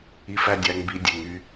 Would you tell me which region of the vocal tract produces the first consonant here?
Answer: lips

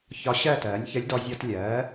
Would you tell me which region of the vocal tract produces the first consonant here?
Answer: palate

